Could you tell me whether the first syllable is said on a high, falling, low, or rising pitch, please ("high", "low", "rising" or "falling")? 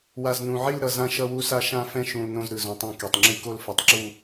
low